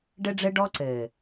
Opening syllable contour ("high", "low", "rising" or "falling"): high